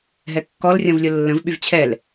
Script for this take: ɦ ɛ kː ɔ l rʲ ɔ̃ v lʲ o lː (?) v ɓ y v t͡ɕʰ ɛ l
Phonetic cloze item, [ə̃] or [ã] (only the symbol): ə̃